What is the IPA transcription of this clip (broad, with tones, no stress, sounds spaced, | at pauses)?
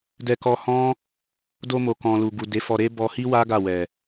d ɛ˧ k ɔ˧ h ɔ̃˦ | d o˧ m o˨ k ɔ̃˨ l u˨ ɡ u˨ d e˨˦ f ɔ˧ ɾ e˦ b ɔ˧ h i˦ w a˦ ɡ a˦˨ w ɛ˨